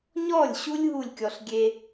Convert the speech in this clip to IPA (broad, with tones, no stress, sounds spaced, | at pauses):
ɲ ɔ˦˨ lʲ ɕ u˦ lʲ ɦ u˦˨ lʲ kʲ ɔ˧ ɬ ɡʲ e˧